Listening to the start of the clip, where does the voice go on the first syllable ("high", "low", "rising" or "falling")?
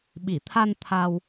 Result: low